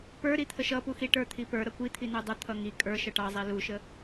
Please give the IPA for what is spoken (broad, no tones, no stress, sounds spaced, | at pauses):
p ə˞ ɾ i t̪ʰ ə ʃ ʌ p u x i ʈ ə˞ t̪ʰ i p ə˞ ɾ ʌ kʷ i t̪ʰ i n u dˤ ə t̪ʰ ʌ ŋ i kʼ ə˞ ʃ ʌ ʈ ɑ zˤ i l u ʃ ə